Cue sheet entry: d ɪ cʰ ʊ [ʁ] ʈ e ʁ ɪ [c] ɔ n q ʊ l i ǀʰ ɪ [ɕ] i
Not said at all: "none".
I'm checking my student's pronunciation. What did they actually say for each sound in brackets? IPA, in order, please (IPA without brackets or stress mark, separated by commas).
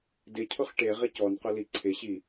χ, c, ɕ